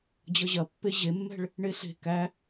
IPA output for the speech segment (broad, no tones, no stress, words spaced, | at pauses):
d͡ʑʌʑɐpːe ʑemːɛ̤ɭ | ɳeɬe̤ kæ